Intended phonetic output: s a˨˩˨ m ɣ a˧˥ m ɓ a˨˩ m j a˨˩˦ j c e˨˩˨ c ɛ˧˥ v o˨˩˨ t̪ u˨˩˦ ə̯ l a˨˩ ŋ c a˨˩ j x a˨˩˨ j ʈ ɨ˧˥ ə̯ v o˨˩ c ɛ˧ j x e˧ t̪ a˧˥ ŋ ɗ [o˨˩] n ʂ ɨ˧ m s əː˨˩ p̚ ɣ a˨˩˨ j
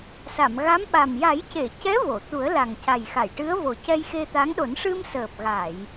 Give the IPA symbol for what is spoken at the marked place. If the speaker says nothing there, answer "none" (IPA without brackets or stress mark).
o˨˩˦